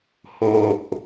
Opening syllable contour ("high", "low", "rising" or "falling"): low